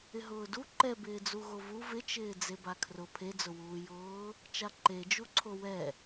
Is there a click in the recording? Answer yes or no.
yes